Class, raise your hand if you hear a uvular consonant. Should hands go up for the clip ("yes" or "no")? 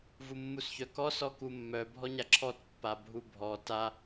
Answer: no